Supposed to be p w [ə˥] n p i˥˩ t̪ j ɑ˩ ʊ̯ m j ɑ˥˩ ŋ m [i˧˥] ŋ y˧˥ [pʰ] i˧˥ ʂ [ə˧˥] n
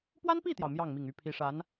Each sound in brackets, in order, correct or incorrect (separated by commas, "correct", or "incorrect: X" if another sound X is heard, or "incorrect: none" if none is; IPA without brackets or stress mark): incorrect: a˥, incorrect: i˨˩, correct, incorrect: a˧˥